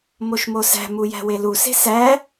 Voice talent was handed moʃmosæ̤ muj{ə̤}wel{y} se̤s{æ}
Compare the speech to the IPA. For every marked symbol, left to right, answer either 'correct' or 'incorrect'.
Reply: incorrect, incorrect, correct

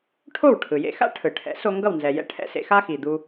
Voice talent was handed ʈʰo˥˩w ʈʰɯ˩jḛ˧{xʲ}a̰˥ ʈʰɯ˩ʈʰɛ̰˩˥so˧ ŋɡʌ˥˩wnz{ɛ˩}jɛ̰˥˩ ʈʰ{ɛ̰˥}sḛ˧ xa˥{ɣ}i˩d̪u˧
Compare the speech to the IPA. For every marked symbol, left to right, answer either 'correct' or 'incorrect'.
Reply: incorrect, correct, correct, incorrect

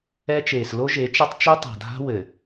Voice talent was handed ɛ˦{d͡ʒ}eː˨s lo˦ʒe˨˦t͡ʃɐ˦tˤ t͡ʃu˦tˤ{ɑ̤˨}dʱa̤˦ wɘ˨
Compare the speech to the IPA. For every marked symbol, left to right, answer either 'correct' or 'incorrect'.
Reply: incorrect, incorrect

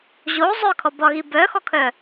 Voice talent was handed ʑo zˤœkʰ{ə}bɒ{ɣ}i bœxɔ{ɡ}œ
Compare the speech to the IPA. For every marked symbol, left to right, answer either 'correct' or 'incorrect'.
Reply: incorrect, correct, incorrect

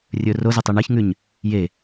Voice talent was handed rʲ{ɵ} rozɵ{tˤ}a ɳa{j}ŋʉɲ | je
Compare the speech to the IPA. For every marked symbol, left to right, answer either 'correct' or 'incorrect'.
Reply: correct, correct, incorrect

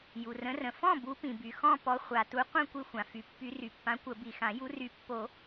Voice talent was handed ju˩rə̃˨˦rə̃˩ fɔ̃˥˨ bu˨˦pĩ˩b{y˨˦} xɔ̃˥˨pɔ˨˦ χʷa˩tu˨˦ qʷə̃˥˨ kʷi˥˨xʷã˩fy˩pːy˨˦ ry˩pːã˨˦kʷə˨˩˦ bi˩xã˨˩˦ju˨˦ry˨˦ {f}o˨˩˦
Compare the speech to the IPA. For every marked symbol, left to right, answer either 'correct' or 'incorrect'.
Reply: incorrect, incorrect

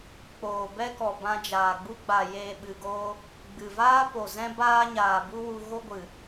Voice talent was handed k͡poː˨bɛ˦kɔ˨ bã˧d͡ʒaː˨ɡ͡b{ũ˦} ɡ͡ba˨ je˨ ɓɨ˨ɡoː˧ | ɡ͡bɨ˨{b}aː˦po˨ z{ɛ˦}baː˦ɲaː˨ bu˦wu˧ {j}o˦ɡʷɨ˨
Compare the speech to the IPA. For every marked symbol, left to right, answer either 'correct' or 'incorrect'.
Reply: incorrect, incorrect, incorrect, incorrect

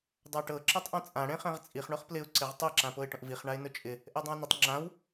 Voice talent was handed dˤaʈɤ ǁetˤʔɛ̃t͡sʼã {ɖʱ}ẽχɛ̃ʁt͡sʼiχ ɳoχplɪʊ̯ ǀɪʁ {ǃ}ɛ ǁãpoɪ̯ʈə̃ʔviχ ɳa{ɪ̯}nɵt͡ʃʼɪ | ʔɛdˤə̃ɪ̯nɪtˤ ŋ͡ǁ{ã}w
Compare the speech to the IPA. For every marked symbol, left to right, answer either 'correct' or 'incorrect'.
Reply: incorrect, incorrect, correct, correct

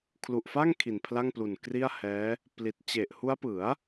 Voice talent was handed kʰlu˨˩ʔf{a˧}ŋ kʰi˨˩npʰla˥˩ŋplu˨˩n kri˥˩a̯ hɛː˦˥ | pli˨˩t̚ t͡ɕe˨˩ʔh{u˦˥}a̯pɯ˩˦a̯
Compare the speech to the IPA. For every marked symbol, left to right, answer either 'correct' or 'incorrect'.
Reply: incorrect, correct

